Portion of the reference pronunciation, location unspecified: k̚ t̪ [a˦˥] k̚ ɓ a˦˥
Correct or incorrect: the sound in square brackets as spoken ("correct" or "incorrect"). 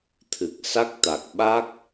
incorrect